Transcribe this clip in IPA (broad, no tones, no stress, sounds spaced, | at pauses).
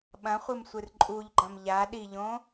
ɓ ɐ̃ χʷ ɨ m sʷ ɨ r ǃʼ u ʎ ɡ͡ǃ ɐ̃ m ʎ a ɗ i ʎ õ